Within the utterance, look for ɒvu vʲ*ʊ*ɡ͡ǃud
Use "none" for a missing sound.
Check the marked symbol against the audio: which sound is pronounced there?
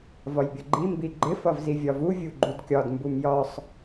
u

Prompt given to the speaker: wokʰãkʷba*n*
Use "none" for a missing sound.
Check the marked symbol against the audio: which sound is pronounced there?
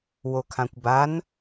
n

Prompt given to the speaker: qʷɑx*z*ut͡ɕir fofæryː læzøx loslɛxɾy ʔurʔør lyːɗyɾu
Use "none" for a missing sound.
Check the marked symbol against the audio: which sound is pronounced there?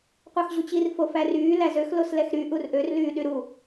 ʑ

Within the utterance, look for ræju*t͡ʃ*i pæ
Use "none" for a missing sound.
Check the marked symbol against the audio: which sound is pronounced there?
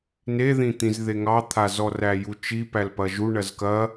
t͡ʃ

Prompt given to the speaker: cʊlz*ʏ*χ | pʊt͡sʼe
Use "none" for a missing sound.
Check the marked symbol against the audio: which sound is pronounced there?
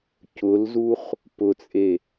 u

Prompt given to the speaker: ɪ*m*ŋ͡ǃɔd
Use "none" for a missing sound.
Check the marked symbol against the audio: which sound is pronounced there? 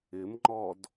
m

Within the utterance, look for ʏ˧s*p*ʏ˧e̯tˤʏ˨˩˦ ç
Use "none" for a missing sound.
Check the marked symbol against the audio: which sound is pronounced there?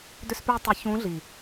p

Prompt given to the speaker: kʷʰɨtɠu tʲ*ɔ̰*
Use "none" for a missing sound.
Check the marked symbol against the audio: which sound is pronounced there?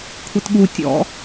ɔ̰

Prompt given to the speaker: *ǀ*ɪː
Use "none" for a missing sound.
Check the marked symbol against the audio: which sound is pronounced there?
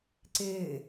ǀ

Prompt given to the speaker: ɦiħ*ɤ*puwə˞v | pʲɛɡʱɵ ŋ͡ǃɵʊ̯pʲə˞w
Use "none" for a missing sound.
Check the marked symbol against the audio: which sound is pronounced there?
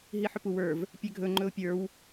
ɵ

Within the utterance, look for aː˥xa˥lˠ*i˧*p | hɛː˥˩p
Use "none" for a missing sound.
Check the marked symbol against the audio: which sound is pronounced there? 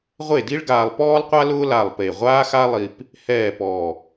i˧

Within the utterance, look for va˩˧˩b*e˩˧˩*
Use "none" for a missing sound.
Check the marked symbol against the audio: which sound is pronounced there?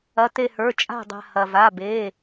e˩˧˩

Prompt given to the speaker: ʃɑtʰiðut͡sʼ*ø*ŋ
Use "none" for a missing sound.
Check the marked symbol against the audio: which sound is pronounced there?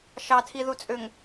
ø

